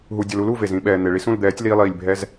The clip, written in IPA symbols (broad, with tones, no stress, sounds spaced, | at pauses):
ɦ u˨ dʲ ʌ˨ l u˦ l u˦˨ v e˨ z ĩ˧ ɓ ɛː˨ n̪ e˨ ɭ i˦ s ũ˦˨ l d̪ ɛː˨˦ tʲ l iː˧ lˠ iː˨ lʲ bʱ ɛ˦ z